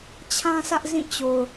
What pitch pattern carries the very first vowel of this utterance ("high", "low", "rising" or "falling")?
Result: high